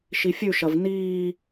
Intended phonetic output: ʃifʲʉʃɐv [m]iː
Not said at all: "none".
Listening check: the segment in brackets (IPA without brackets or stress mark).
n